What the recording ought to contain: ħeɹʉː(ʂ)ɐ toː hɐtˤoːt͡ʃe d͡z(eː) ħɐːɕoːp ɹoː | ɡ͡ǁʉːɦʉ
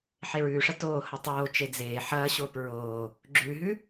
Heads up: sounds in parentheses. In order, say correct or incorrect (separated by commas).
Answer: correct, correct